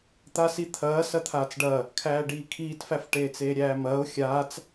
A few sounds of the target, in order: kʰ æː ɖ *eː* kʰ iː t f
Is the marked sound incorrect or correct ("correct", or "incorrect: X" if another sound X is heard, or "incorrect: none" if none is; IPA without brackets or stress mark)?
incorrect: iː